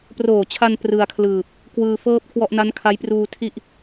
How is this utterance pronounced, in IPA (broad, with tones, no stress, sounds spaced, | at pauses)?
p r oː˨˩ t͡ɕʰ a˧ n p r ɯ˧ a̯ kʰ l ɯː˨˩ p̚ | k w ɯː˧ f ɤː˥˩ p̚ kʰ w ɔ˥˩ ʔ n a˦˥ n kʰ a˦˥ j p r uː˧ tʰ i˥˩ ʔ